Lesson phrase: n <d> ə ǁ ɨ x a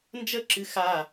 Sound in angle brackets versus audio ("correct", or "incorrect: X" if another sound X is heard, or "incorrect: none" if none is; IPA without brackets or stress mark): incorrect: d͡ʒ